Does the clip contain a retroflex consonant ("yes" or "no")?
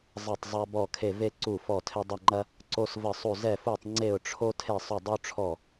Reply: yes